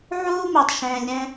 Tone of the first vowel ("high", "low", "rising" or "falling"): high